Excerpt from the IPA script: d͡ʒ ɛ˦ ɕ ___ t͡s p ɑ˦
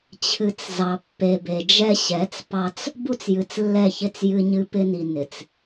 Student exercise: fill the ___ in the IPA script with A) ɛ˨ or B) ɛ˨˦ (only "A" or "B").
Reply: B